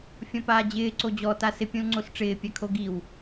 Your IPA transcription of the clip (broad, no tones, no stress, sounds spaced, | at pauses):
fʲ ɔ̃ p aː d͡ʑ ɪː ǀ o d͡ʑ ɔ t a s ɪ pʲ ũ l ŋ͡ǀ o s ʈ͡ʂ ɪː pʲ a kʰ o ɡ i w